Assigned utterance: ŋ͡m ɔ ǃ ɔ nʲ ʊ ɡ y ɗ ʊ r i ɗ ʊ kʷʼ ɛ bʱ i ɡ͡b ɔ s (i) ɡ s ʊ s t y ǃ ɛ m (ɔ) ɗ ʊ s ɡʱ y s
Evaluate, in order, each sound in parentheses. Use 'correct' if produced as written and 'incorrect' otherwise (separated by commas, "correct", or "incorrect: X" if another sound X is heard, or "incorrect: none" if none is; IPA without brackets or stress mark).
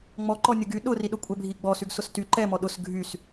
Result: incorrect: y, correct